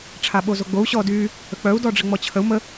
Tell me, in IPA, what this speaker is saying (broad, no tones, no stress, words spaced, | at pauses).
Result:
ʈ͡ʂʰaɓozoɡ͡bou̯ ɕɔdy | ək͡pœu̯ dɔɖ͡ʐəŋ͡mɔt͡ɕʰəu̯ mə